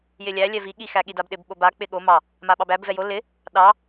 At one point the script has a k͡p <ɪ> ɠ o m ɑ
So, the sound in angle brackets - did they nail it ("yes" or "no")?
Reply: yes